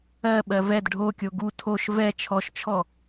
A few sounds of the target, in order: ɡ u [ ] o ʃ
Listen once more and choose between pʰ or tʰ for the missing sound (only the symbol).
tʰ